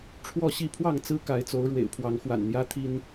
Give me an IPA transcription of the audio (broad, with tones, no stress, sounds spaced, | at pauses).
ʈ͡ʂʰ w ɔ˥˨ ɕ i˥˨ pʰ w ɑ˥˨ ŋ t͡s ɹ̩˦ k a˨˦ ɪ̯ t͡s o˨˦ ʊ̯ ɻ w ḛ˨˩ ɪ̯ pʰ w ɑ˨˦ ŋ x w a̰˨˩ n n̪ j ä˦ t̪ʰ i˦ n